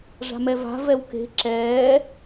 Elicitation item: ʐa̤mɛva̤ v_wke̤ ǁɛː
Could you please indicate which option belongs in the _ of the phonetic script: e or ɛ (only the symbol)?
ɛ